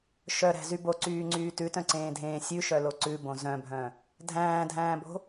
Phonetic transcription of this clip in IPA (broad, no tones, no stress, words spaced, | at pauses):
ʃœɾæ̤zy boǀyːŋ͡ǀyː tʉtœ̃ǀẽːdʱẽː sʲʉʃœlo ǀʉbõ zœ̃bʱœ̃ | dʱæ̃ːdʱæ̃ːbo̤